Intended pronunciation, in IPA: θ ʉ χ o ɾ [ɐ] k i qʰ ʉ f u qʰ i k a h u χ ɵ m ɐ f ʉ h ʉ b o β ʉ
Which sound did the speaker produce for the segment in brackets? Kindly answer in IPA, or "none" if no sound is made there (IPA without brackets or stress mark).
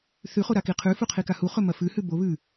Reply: a